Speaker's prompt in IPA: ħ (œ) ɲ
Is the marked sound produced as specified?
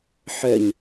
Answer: yes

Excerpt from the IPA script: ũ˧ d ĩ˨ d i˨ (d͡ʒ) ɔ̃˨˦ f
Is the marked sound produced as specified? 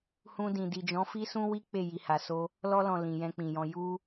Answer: yes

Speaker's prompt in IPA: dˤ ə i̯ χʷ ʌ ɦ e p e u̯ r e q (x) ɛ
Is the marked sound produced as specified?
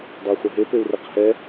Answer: no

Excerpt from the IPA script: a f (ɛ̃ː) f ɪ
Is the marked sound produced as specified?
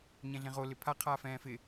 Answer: yes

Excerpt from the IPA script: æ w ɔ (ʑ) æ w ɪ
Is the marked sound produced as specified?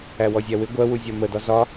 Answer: no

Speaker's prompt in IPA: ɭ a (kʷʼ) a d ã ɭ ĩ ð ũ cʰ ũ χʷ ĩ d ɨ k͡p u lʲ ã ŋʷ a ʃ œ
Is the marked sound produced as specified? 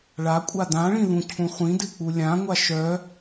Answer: yes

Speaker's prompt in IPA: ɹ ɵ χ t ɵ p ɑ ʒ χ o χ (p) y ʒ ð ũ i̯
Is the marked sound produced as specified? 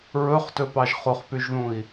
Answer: yes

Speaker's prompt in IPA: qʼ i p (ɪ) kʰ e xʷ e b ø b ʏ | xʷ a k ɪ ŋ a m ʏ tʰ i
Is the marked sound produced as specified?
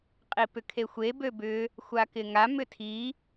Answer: no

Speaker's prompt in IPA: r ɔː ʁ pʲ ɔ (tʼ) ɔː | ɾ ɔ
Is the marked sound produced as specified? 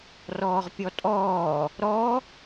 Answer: yes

